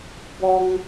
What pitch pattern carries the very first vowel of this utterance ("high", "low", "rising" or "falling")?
low